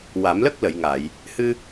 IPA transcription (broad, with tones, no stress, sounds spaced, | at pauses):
w a˨˩˦ m l ə˦˥ k̚ l ə˨˩˨ j ŋ a˨˩˨ j | h ɨ˧